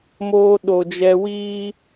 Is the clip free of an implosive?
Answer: no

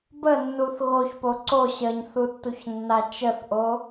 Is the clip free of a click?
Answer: no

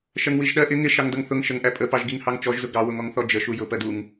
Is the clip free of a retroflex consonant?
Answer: yes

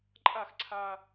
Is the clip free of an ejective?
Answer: no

